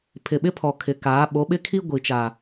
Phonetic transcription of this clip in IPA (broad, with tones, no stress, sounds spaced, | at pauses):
pʰ ɪ˨ ɓ ɪ˦ pʰ ɔ˨ kʰ ɪ˨˦ k aː˨˦ ɓ o˨˦ ɓ ɪ˦ kʰ i˦ ɡʷ i˨ t͡ʃ a˨